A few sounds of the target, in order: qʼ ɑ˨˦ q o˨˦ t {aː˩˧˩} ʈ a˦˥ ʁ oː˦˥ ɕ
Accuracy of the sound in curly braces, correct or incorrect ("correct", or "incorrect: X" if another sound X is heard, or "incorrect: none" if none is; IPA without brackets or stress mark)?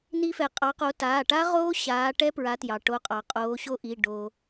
correct